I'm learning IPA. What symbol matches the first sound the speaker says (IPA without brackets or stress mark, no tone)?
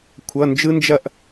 kʷʰ